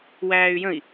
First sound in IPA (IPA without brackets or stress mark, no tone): w